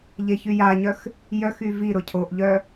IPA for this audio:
ʎeçyjaɲœx | jœxy viɾʊ cʰoʔʎœ

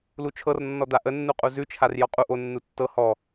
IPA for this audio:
lut͡ʃʰɤrnːɔ d̪aʔənːuqʼu zʉt͡ʃʰar jɔqʼu ʔo nːutːɤ hɔ

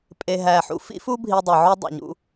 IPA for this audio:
pʼe˩ɦæ˩ħṵ˧ fḭ˥fu˥ bʱi˧dˤe˩ ʕo˥dˤḛ˩ɲṵ˧

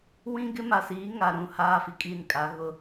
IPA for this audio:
wĩ˦ɡɪ˦ ma˨siː˨˦ ŋa˨ɾũ˦˨ haː˦fi˨kʼi˦˨nkʼa˨˦ ɣʊ˦

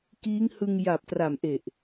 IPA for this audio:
kiː˦˥ŋhɯ˧ŋja˨˩p̚ tra˨˩mʔe˨˩ʔ

